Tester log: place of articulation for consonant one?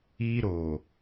alveolar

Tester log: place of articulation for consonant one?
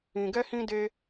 velar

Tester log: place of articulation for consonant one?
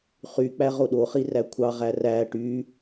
uvular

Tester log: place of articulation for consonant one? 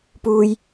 labial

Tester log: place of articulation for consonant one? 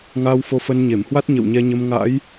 velar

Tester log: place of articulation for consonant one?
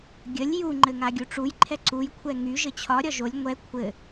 velar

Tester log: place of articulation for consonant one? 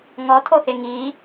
velar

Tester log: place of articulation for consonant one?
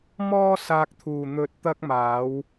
labial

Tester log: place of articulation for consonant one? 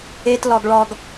alveolar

